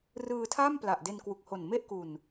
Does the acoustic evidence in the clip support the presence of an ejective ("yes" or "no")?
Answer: no